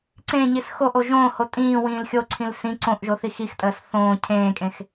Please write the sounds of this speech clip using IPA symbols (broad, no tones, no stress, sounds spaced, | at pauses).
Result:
ǀ ẽ ɲ i s x o ʔ o ʒ õː h o tʼ ĩː w ĩː l xʲ o ǀʰ ĩ l s ĩ ǀ õ ʔ ʒ o θ i x i x tʼ əː s θ õː cʰ ẽː kʼ ẽ x